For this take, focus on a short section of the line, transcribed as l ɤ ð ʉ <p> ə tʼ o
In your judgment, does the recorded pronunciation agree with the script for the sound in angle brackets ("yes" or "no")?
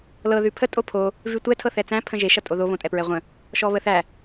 no